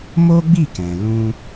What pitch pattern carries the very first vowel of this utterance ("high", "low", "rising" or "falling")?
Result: high